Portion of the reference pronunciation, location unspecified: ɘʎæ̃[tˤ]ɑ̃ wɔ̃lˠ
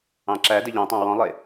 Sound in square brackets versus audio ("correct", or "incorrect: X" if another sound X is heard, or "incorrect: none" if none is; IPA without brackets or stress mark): correct